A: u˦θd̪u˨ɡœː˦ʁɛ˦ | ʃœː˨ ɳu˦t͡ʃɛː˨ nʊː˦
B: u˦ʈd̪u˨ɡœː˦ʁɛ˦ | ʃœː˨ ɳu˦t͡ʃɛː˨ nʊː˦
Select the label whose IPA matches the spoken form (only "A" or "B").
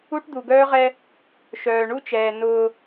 B